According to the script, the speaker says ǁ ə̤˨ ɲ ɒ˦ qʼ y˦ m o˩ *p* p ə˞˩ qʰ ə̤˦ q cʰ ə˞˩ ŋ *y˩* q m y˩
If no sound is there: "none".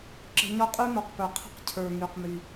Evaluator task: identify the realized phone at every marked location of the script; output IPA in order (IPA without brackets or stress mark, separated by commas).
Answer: q, y˩